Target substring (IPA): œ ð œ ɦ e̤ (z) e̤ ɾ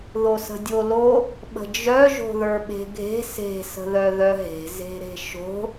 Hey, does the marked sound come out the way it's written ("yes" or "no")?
yes